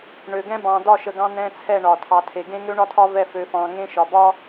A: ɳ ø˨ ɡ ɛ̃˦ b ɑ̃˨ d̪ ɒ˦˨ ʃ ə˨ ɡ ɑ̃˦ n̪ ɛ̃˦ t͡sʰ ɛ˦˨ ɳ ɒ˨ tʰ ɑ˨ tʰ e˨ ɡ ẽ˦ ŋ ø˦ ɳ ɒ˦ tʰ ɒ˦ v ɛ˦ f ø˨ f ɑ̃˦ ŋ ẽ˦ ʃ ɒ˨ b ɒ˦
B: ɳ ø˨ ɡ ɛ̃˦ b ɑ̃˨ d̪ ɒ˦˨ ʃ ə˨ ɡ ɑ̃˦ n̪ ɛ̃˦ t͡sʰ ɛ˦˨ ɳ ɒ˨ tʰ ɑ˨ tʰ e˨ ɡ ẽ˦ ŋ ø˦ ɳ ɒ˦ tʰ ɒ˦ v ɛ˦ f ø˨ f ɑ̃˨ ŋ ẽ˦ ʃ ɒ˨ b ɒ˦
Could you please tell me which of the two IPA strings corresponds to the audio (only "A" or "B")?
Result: B